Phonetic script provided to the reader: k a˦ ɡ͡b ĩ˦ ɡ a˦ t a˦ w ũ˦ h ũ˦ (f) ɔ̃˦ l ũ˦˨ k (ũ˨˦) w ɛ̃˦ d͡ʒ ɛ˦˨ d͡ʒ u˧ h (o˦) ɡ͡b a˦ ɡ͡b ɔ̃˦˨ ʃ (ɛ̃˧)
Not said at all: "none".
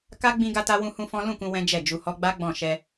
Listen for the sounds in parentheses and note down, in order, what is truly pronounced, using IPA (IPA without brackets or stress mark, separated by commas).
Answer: f, ũ˧, ɔ˦, ɛ˧